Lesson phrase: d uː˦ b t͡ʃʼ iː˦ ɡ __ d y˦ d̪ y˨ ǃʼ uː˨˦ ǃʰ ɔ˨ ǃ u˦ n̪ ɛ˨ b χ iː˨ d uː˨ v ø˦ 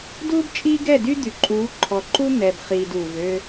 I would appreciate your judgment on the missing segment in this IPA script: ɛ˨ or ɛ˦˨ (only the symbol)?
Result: ɛ˦˨